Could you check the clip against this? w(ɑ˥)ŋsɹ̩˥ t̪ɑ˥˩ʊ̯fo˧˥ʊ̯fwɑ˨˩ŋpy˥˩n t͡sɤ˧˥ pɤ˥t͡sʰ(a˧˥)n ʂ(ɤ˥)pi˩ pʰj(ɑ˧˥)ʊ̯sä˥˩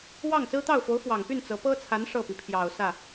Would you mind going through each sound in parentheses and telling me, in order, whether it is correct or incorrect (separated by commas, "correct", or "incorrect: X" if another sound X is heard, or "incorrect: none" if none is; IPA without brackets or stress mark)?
incorrect: ɑ˥˩, correct, incorrect: ɤ˥˩, incorrect: ɑ˨˩